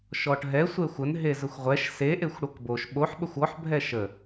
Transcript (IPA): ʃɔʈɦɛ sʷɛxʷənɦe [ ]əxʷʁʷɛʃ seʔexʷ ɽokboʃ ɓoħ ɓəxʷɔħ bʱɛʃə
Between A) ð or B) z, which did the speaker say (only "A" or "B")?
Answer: B